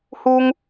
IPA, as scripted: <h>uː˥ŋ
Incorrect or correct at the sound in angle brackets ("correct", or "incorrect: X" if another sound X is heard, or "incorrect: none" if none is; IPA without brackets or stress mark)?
correct